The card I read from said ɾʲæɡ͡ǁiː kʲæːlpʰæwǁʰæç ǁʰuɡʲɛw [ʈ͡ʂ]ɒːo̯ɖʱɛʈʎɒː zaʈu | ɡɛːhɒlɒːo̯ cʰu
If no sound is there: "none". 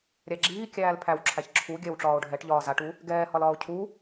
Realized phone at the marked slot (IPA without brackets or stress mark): ʈ͡ʂ